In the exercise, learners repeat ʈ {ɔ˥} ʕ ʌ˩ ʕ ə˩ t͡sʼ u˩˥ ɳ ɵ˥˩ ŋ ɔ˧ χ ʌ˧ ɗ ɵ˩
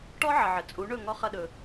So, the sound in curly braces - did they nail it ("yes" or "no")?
yes